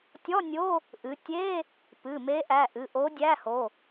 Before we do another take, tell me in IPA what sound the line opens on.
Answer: tʲ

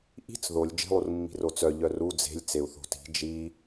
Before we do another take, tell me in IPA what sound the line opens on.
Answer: ʔ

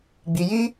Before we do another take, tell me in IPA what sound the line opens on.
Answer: ɡ͡b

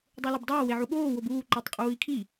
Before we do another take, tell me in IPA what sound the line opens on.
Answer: dˤ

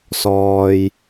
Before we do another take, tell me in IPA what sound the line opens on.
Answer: s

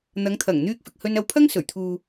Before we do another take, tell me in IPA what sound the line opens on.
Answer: n̪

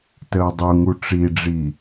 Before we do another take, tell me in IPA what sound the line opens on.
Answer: t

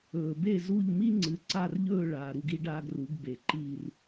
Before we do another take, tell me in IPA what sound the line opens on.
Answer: ɵː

